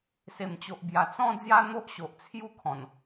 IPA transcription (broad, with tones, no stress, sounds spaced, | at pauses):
s e˨˩ m t͡ɕ o˨ ʔ b j a˨˩ t͡s ɔ̃˦ d͡z j a˦ n̪ o˦ ʔ ɕ o˨ ʔ t͡sʰ j u˥˧ kʰ ɔ̃˨˩ n